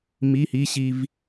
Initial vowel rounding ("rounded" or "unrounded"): unrounded